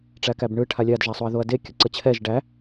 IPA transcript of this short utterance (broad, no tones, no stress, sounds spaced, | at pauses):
ʈ͡ʂ æ k æ b ɳ ɯ ʈʰ a lʲ a d ʒ a sˤ o ɐ̯ ð o ɐ̯ d e kʲ ə ǀ ə t͡ɕʰ ɛ ʒ ɖ æ